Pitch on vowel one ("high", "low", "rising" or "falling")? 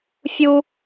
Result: high